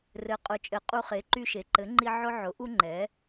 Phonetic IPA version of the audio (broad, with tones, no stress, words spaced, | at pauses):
rɘ˩˥qʼʊ˩˥t͡ʃʼɘ˩˥ qʼu˧χe˩˥ ǃy˧ʃe˩˥ ǃɘ˩˥ŋ͡ǃi˧ ʕʊ˧ʕʊ˩˥ʔu˧ ŋ͡ǃɛ˩˥